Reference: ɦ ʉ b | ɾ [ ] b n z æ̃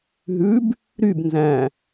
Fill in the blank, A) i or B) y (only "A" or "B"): B